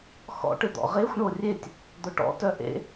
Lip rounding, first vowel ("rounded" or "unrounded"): rounded